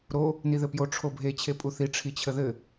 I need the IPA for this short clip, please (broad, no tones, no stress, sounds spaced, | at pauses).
ɾ o | n i ð ɘ p j o ʈ͡ʂʰ o bʱ e t͡ɕʰ e pʼ u θ i ʈ͡ʂʰ i t͡ɕʰ ə ð ɘ